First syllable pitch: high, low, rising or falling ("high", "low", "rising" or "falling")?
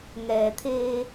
low